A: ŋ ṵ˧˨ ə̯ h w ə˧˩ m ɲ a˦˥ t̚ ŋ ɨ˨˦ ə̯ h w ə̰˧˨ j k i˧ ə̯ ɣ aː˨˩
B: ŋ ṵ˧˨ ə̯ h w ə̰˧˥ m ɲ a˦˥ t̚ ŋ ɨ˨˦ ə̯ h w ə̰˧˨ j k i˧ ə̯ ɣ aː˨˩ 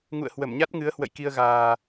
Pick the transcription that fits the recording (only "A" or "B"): A